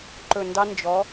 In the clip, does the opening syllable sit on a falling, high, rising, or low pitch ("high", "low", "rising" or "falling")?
low